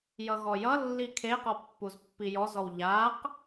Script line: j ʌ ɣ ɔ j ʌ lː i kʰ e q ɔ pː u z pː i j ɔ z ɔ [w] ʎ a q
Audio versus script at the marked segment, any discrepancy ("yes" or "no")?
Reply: no